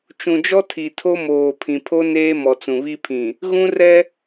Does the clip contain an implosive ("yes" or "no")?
no